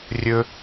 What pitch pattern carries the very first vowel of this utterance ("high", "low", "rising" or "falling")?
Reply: high